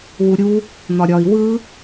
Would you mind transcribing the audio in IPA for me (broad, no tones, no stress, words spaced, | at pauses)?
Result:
wuɾʲu | n̪ɒɾʲɒi̯ wɯ